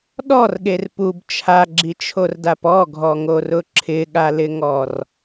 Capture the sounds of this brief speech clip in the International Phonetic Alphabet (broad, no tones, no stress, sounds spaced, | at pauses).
ɗ ɔ r ɠ e r p u b t͡ʃʰ a ɡ͡ǁ i t͡ʃʰ o r d a p ɔ ɡʱ ɔ ŋ o r ʊ ǁʰ ɪ ɠ a l ɪ ŋ ɔ r